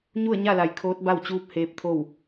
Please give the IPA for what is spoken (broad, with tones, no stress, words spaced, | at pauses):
ɲu˥˨ə̯ɲa˥˨la˩˧j kʰoː˧˥t̚ba˥˨w t͡ɕuː˧˥p̚ heː˧˥p̚t̪ʰo˥˨w